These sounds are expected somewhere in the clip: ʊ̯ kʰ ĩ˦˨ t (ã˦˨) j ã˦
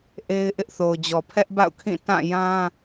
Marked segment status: correct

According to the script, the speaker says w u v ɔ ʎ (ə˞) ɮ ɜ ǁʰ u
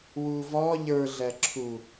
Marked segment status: correct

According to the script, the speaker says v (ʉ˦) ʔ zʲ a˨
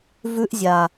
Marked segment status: correct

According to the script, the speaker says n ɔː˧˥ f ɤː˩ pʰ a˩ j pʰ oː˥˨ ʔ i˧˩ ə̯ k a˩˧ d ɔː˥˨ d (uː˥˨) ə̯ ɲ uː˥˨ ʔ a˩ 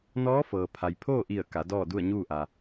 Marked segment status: incorrect: u˥˨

